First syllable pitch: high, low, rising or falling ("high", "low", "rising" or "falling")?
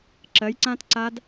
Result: rising